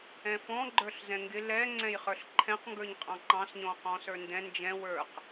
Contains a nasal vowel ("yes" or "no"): yes